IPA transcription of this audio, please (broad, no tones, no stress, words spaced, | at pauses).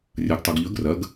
rʲɐɡtˤuɡʎɵɡ rɐɡ